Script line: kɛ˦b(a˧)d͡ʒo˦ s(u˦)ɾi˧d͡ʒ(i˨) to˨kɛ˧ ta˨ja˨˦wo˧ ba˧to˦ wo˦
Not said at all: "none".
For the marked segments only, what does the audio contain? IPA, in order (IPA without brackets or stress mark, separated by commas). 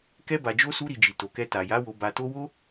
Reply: a˧, u˦, i˨